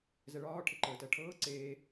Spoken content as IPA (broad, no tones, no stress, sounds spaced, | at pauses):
z ɛ ɭ ɒː ʈʰ e ǃ əː t ɜ ʈʰ ɤː ǀ eː